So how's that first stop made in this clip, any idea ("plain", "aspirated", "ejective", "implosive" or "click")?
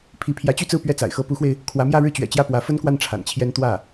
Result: aspirated